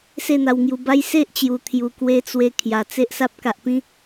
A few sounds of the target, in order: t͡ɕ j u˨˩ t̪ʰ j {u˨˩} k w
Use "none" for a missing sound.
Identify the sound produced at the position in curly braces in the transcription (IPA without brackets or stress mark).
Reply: u˨˩